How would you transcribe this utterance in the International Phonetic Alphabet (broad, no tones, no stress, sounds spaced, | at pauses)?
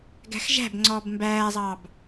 ɡ æ̤ x ʒ æ̤ b ŋ͡ǀ ɔː b m b æː zˤ ɑ b